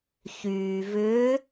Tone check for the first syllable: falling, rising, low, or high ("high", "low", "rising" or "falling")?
low